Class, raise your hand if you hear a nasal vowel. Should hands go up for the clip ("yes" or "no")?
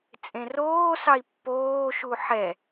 yes